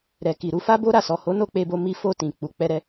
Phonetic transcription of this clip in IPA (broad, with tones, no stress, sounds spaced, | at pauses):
ɾ ɛ˨ k i˨ ɾ u˧ f a˦ b o˦ ɾ a˦˨ s ɔ˨ h o˨˦ n o˦˨ k͡p e˧ b o˧ m i˧ f o˧ t ĩ˨ k͡p u˨ k͡p ɛ˧ ɾ ɛ˧